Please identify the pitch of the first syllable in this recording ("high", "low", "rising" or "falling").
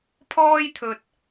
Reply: high